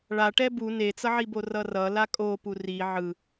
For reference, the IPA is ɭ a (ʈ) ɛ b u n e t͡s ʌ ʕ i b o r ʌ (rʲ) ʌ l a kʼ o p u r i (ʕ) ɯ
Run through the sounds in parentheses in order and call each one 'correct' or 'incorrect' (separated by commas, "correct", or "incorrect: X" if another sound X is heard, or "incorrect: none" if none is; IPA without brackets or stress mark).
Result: correct, incorrect: r, correct